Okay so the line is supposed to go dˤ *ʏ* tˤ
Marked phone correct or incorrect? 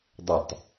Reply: correct